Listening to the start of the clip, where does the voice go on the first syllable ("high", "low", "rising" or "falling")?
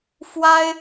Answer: high